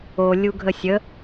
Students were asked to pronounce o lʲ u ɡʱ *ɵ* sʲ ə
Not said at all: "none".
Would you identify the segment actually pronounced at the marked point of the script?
ə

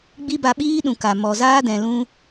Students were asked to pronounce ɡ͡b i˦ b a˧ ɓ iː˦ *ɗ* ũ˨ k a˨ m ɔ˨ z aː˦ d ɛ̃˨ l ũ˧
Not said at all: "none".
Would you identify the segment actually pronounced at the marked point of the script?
ɗ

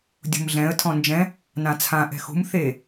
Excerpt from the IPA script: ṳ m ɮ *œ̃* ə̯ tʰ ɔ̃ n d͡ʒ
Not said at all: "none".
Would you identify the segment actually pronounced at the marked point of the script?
ɛ̃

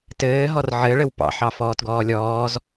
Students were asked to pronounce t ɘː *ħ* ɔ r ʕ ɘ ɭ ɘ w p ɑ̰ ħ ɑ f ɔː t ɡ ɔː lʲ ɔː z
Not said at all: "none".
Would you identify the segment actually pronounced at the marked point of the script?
ɦ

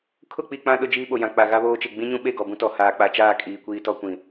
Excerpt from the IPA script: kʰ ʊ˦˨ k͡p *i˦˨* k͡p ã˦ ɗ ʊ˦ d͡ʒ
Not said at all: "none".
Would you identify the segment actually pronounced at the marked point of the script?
i˦˨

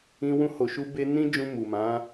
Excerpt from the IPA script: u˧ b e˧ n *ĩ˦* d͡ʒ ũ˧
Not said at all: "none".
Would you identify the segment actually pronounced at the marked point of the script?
ĩ˦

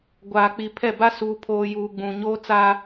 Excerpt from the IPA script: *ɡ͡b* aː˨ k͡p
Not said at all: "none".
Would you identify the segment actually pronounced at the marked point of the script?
ɡʷ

